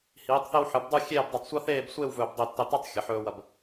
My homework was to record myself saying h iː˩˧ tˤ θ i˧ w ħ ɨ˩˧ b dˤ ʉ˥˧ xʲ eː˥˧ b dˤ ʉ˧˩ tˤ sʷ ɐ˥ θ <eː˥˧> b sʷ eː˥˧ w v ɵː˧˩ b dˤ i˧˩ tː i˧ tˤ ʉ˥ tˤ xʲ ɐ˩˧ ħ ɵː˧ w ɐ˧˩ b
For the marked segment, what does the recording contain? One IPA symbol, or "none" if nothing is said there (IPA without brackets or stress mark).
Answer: eː˥˧